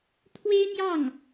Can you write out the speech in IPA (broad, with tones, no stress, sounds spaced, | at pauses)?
t̪ʰ w e˥ ɪ̯ n̪ j ɑ˥˩ ŋ